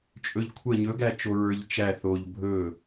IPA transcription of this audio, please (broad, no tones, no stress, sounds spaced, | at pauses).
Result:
t͡ʃʼ ɵ ʎ kʷʰ ə ɲ ɵ ɡ æ t͡ʃ o ɹ ə˞ ʎ t͡ʃ æ θ o ʎ bʱ ɵ